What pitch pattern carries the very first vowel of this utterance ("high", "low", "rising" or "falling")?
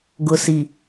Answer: low